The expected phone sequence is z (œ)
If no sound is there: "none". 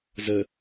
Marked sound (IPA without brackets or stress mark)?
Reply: ə